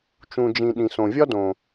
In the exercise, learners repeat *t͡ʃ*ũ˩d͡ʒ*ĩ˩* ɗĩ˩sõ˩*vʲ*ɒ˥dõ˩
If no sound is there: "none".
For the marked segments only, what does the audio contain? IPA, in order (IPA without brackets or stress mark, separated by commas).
t͡ʃ, ĩ˩, vʲ